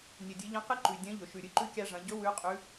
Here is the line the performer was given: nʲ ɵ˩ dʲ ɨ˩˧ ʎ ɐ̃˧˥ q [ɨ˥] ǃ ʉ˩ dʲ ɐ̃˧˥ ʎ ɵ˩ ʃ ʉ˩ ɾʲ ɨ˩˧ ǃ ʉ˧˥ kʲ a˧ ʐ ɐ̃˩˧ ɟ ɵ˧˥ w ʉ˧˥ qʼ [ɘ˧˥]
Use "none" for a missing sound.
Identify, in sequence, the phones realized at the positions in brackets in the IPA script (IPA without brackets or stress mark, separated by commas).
ɨ˥, ʉ˧˥